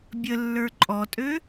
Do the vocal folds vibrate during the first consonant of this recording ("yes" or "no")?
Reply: yes